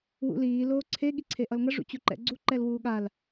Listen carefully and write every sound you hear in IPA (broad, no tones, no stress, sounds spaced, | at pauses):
w ṵ l iː l oː ǀʰ e ɠ i ǀʰ e ʔ ʌ l ŋ ʌ ʐ ṵ t͡ɕ u ǃ ɛ̰ ɡ͡ǀ u ǃ ɛ l w uː ɠ a l